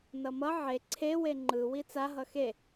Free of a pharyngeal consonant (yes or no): no